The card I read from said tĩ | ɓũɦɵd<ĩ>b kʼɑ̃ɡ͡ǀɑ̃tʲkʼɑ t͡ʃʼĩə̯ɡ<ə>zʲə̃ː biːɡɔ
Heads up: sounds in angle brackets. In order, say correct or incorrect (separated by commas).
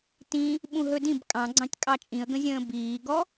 correct, incorrect